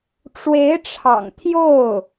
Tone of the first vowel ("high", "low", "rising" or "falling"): rising